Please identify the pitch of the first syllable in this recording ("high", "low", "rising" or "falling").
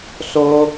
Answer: high